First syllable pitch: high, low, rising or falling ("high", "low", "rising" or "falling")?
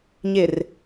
low